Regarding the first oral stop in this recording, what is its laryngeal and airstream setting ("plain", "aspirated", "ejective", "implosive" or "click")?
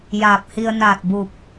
plain